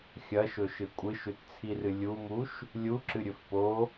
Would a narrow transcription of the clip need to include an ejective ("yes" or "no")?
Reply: yes